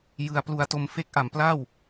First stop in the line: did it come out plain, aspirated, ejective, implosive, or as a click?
plain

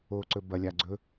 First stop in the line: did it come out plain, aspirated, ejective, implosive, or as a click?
click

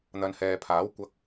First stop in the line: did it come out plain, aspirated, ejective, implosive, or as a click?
aspirated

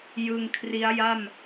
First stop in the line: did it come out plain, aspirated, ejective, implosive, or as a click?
aspirated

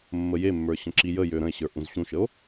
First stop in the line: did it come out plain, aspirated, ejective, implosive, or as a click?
click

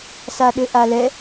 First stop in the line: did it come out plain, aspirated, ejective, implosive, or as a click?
implosive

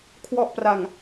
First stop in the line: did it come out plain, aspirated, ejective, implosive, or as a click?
aspirated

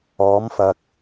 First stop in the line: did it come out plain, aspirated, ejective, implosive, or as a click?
plain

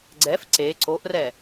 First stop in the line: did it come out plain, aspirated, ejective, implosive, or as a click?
click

